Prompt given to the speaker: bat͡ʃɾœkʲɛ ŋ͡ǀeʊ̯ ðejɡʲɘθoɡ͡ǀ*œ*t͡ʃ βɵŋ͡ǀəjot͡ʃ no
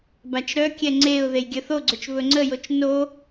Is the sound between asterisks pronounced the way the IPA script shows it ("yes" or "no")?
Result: no